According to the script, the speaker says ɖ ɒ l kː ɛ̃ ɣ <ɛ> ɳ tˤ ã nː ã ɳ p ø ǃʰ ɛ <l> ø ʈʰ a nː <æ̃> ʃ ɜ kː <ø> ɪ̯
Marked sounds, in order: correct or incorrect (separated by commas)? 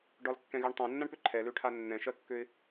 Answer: incorrect, correct, incorrect, correct